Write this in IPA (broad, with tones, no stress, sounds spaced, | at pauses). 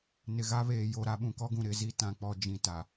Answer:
n ɪ˨ ɣ a˦ β eː˨ j o˨ ɾ a˨˦ ɓ ũ˨ k ɔ˦ ɡ ũ˨ ɾ ɪ˨˦ z i˦ t ã˦ k͡p ɔ˦ d͡ʒ ĩ˦ t a˨